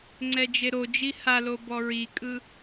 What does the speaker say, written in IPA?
ŋ͡ǀ ɛ d͡ʒ e ɾ o d͡ʒ i h a l o b ɔ ɹ i kʼ ɯ

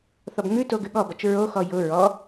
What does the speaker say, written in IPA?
θ ɔ b ŋ ʉ t o ɡ ʉ ɠ ɔ b ɔ t͡ʃ ɹ o x ɔ j ʊ ɹ ɔ

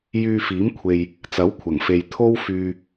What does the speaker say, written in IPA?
j yː˧ f iː˨˥ m kʷʰ e˨ j | t͡s ɐ˨˥ w kʷʰ ɐ˨˩ ŋ f e˨ j t̪ʰ o˥ w f yː˧

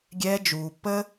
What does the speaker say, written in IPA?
ɡʲ ɛː˧ d͡ʒ uː˨ pː ə˦

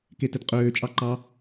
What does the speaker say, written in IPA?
k e t ɛ t qʼ øː t͡ʃʼ ɑ ǃ ɑ

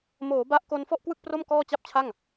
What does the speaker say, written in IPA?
m oː˩˦ b a˦˥ ʔ k o˧ n f ɔ˥˩ ʔ k w ɯ˥˩ k̚ p r o˥˩ m k ɔː˥˩ t͡ɕ a˥˩ p̚ t͡ɕʰ a˥˩ ŋ

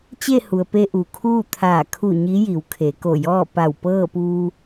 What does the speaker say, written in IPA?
t͡ɕ e˥˨ h u˩ ə̯ p e˧ ʔ u˩ kʰ uː˥˨ t̪ʰ aː˧˩ kʰ u˧˩ ɲ i˧˥ j i˩˧ w kʰ e˩˧ k o˧˩ j ɔː˥˨ p a˧˩ w p ɤː˥˨ p uː˧

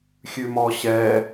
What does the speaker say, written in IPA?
xʲ ʉ m ɔː ɕ ɛː

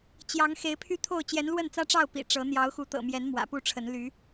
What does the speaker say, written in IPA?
t͡ɕ j ɑ˨˦ ŋ x e˨˦ ɪ̯ pʰ y˦ t̪ʰ o˥˨ ʊ̯ t͡ɕ j ɛ˨˦ n l w ə˥˨ n t͡s ä˦ ʈ͡ʂ ɑ˥˨ ʊ̯ p ḭ˨˩ ʈ͡ʂ ɤ˨˦ n̪ j ɑ˨˦ ʊ̯ x u˨˦ t̪ ɤ̰˨˩ m j ɛ˨˦ n m w ä̰˨˩ p u˥˨ ʈ͡ʂʰ ə˨˦ n l y˨˦

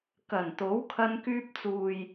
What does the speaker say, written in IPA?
k ɐ˨˩ n t̪ o˨˥ w kʰ ɐ˧ n k yː˧ p̚ t͡s uː˨ j

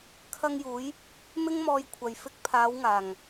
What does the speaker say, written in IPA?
kʰ ɐ˧ ŋ j uː˨˧ j | m ɪ˥ ŋ m ɔː˧ j kʷʰ ɐ˨ j f ɪ˧ k̚ pʰ aː˨˧ w ŋ aː˨˩ ŋ

